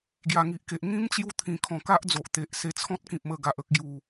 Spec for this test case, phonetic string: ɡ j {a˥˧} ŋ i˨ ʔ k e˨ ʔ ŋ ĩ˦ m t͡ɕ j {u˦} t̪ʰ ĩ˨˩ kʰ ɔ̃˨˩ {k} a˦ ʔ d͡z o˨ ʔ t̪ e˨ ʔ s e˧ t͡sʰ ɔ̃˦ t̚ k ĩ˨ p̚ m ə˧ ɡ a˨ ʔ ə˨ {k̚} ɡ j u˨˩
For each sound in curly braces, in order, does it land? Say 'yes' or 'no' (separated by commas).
no, yes, yes, yes